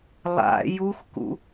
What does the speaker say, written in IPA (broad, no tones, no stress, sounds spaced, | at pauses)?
lˠ a̰ j u x k ṵ